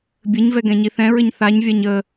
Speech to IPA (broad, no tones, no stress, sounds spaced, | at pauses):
bʲ ɘ ɲ v ɛ ɡ ɛ̃ ɲ i θ ɛ̃ ɹ ɘ ɲ θ a ɲ vʲ a ɲ ə